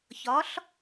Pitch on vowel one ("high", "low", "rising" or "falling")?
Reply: rising